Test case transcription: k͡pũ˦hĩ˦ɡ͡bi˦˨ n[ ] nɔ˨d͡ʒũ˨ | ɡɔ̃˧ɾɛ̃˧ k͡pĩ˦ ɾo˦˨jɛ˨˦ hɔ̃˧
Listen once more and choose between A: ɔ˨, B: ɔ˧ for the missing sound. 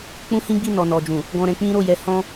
A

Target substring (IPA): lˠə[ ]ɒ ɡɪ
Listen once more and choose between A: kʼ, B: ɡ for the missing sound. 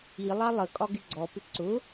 A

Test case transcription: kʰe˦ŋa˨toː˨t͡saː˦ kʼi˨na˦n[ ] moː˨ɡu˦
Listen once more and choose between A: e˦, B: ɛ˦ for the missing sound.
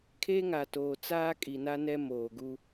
B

